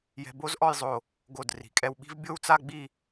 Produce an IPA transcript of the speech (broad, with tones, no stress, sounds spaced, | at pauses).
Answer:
j ɛ̤˧ b o˥ z ʔ ɔ˥˧ j zˤ o˧˩ | ɡ o˧˩ d r i̤˩˧ kʼ ɛ˧ w ɓ i̤˥ v bʲ o˥˧ w t͡s a˥˧ ɡ͡b i˥˧